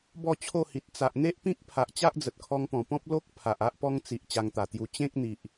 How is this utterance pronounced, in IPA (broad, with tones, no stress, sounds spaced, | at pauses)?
b ɔ˥˧ t͡ɕʰ o˥˧ h i˨ t̚ t͡s a˨ ʔ n̪ e˦ ʔ p ĩ˦ k̚ pʰ a˨ ʔ t͡ɕ a˦ ʔ d͡z ə˨ t̚ kʰ ɔ˧ ŋ p ɔ̃˨˩ p ɔ̃˦ p̚ l o˦ k̚ pʰ a˨ ʔ a˦ ʔ p ɔ˦ ŋ t͡s i˨ ʔ t͡ɕ a˧ ŋ t̪ a˨˩ t̪ j u˧ t͡ɕ ẽ˦ k̚ n̪ i˨ ʔ